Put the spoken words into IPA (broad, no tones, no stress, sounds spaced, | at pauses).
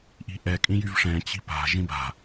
ʔ i̤ ʔ ɛ kʼ ĩ j y v ʂ ɛ̃ t͡ɕ i̤ p a̤ ʒ ĩ b a̤